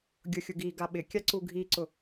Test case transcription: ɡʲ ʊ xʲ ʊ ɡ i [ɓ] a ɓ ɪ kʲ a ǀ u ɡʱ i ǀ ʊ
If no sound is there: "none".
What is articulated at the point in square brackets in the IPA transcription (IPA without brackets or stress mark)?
ɡ